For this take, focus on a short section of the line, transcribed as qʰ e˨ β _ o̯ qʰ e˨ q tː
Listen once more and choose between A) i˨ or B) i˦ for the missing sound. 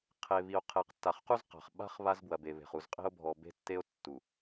A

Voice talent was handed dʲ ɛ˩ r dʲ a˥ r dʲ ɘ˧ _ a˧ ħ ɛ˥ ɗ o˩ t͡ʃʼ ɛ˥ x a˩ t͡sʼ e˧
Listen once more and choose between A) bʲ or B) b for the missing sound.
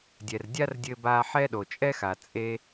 B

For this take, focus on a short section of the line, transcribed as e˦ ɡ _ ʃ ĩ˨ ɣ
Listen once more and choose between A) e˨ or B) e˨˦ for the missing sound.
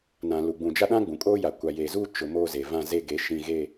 B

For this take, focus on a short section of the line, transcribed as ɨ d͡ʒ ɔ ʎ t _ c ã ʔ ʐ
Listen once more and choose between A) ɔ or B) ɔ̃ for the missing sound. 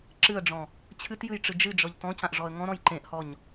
B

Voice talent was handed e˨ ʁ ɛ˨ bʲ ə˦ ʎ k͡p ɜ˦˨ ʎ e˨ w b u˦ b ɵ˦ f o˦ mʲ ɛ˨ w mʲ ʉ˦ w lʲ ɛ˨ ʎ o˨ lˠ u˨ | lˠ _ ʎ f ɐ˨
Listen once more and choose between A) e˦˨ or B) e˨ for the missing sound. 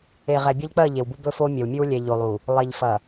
B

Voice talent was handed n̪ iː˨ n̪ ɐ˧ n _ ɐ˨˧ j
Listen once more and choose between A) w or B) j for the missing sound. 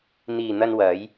A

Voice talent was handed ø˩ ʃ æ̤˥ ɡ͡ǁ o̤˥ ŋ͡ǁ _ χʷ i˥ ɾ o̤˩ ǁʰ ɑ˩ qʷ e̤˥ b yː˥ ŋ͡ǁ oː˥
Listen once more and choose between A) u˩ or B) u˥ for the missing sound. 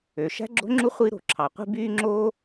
B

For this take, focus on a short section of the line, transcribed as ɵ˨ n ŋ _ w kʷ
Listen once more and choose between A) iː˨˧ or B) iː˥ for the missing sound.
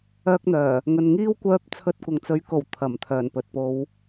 B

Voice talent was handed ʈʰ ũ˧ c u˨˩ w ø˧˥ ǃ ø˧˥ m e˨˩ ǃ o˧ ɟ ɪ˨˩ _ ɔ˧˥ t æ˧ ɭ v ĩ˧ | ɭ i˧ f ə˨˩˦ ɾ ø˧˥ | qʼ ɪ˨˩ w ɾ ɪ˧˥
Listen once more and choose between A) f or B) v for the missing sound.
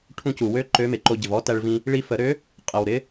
B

